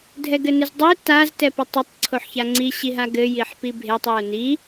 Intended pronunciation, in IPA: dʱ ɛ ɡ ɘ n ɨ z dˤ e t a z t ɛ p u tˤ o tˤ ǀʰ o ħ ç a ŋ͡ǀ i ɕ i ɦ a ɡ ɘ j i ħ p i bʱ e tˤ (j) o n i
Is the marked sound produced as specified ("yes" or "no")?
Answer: yes